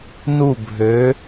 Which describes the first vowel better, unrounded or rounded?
rounded